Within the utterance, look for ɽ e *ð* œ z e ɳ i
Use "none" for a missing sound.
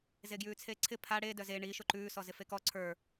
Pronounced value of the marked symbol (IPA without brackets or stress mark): d